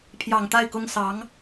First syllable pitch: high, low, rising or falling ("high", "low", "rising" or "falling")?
low